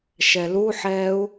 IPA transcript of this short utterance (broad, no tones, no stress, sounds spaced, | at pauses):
ʃ ɛ l u ħ ɛː u̯